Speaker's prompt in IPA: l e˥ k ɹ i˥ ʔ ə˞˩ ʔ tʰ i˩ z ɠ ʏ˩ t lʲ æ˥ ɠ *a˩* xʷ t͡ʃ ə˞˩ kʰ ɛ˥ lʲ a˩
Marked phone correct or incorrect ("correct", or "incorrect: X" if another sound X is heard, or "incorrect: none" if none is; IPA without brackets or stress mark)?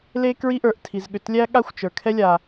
incorrect: a˥